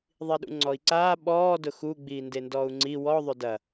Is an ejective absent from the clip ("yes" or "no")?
yes